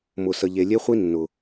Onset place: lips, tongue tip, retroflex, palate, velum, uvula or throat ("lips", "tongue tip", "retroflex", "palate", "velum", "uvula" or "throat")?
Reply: lips